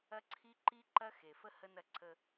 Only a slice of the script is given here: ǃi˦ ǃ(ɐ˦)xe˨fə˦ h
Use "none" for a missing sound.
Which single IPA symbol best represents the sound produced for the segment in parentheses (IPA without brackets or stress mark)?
ɐ˦